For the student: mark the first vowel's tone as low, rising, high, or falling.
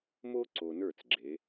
high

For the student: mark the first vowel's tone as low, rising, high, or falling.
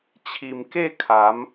low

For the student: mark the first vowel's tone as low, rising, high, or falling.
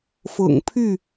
low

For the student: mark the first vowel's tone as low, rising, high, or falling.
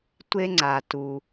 high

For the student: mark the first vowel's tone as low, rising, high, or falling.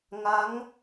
rising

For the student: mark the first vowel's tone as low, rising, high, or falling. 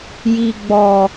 low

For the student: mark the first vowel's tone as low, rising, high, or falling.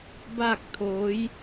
falling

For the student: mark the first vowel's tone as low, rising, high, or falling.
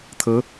rising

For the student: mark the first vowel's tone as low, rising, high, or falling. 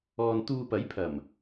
low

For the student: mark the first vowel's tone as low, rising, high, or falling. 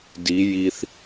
rising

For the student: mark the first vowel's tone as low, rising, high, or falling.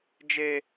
high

